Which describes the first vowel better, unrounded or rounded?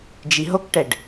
unrounded